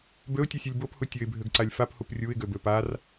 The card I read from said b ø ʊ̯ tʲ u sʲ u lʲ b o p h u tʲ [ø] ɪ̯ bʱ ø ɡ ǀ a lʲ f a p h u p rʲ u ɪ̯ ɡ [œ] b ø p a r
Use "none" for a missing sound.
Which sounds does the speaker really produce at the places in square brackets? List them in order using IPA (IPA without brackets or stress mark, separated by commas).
ø, ø